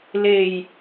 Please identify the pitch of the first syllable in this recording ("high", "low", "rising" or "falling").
low